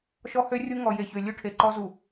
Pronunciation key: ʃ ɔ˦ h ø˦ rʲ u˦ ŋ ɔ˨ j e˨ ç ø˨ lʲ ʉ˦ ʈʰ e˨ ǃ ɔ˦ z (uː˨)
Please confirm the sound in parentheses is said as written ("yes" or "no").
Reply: no